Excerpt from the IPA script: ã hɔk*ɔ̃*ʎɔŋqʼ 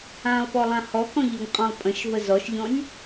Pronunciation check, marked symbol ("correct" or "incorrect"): correct